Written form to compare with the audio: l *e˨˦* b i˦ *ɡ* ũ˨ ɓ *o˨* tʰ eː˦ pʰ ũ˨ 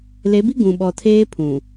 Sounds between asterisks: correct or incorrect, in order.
correct, correct, incorrect: ɔ˨

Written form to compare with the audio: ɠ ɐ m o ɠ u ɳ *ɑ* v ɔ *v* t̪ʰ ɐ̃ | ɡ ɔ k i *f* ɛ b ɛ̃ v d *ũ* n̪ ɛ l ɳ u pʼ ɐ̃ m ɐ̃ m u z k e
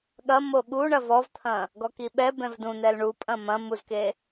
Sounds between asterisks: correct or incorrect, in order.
incorrect: ɐ, correct, incorrect: ɓ, correct

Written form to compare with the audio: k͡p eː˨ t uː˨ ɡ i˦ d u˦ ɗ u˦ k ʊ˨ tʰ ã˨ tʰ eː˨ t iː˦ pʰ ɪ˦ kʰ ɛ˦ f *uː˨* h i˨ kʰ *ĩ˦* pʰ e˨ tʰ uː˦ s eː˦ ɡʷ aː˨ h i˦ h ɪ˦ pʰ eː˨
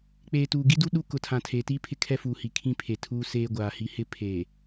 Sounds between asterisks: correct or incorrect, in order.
correct, correct

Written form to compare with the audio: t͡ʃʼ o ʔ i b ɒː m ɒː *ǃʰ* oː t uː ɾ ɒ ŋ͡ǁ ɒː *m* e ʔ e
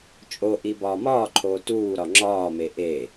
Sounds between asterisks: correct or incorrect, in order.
correct, correct

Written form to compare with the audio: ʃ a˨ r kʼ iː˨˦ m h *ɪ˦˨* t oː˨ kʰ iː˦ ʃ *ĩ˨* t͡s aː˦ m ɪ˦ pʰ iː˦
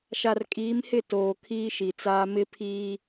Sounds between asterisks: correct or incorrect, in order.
correct, incorrect: i˨

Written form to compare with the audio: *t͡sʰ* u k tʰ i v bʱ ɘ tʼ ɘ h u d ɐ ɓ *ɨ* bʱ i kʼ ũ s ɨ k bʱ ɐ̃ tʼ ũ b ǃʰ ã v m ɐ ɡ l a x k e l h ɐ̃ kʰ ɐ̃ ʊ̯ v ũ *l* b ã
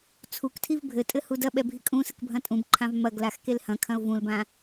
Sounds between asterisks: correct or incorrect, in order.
correct, incorrect: ɛ, correct

